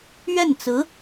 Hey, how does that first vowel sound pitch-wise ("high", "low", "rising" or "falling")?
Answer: falling